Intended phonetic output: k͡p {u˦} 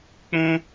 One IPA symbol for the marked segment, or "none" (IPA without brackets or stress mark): ũ˦